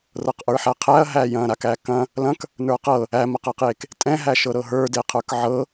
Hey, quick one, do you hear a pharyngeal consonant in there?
yes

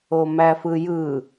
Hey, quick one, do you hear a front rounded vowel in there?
no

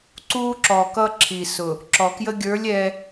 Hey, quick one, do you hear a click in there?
yes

